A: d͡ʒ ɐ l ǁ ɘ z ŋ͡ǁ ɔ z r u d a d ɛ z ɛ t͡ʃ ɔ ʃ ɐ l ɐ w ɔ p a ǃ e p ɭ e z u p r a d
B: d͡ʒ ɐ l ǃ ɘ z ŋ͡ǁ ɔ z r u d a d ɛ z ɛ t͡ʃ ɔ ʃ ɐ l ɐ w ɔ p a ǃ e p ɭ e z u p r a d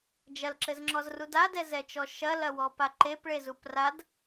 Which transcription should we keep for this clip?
A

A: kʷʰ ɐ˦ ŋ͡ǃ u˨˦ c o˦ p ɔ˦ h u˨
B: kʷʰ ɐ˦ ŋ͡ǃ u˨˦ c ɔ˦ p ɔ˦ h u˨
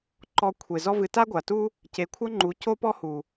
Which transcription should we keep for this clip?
A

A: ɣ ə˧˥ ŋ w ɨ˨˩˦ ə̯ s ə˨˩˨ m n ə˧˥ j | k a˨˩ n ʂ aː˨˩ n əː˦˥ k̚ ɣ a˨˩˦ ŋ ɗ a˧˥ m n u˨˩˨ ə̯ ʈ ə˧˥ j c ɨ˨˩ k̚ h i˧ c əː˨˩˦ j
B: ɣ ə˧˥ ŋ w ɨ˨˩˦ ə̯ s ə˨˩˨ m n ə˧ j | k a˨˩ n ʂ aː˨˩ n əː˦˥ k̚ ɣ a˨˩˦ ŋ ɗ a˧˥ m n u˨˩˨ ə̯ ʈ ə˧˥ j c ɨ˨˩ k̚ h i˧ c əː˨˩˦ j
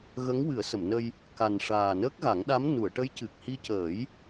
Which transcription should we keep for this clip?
B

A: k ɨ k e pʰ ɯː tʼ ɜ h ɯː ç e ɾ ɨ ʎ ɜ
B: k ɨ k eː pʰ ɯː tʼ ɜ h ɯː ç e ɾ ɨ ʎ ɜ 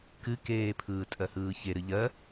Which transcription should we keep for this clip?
B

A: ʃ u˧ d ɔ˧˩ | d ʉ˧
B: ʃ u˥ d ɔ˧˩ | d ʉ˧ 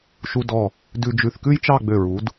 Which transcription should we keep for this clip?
A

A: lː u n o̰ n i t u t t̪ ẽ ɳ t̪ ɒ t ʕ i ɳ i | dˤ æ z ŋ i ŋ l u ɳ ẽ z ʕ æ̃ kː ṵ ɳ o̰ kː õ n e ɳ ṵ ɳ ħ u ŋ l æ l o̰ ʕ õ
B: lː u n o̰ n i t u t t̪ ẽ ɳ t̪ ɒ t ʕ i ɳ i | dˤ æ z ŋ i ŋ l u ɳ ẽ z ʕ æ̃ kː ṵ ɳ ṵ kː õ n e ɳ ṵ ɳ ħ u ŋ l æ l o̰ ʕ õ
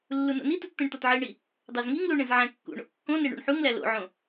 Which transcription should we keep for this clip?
A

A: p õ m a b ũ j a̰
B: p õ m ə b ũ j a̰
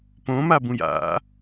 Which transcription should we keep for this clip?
A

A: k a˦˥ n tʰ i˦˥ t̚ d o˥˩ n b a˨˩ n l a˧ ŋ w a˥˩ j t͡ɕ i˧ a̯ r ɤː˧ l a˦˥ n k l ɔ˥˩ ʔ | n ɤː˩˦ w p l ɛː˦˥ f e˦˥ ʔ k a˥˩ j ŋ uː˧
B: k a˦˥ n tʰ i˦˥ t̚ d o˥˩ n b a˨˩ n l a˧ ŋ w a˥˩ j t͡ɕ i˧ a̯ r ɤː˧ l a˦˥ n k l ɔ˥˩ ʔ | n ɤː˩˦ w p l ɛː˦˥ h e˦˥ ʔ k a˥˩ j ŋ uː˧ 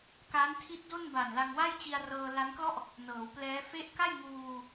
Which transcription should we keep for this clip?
A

